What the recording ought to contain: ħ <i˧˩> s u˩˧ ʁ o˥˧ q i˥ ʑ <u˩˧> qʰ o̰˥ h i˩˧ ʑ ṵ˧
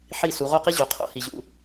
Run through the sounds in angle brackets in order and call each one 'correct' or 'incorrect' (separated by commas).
correct, incorrect